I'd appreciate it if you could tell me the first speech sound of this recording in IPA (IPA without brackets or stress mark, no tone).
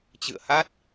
t͡ɕ